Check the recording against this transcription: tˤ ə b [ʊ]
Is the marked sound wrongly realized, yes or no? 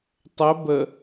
yes